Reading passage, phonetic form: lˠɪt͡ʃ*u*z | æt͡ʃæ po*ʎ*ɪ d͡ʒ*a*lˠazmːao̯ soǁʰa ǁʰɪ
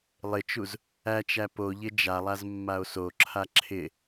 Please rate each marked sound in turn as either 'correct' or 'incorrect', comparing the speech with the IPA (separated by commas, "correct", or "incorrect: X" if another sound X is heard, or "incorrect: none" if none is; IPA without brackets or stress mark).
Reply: correct, correct, correct